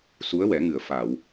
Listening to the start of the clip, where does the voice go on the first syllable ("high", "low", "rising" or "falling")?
rising